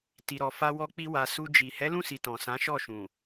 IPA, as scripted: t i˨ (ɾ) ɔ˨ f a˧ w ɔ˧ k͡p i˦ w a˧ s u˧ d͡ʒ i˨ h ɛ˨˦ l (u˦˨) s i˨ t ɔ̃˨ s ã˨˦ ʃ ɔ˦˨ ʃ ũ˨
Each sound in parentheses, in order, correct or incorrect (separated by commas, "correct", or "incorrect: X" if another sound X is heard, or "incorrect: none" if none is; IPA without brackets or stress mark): correct, incorrect: ũ˦˨